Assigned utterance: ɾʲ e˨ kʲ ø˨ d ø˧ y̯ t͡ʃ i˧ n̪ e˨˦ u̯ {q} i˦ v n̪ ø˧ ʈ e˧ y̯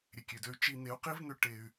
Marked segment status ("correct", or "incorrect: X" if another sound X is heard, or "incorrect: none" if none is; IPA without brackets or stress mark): correct